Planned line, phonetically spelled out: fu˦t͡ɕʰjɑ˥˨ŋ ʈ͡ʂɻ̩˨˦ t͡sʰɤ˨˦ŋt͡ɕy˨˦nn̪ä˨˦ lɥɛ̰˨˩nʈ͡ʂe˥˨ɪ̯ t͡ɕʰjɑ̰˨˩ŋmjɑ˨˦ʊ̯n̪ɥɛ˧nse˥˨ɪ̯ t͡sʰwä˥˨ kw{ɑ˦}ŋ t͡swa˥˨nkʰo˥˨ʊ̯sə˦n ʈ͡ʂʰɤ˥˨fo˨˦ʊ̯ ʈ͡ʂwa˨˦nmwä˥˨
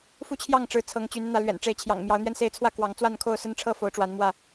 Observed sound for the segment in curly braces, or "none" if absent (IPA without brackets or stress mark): ɑ˨˦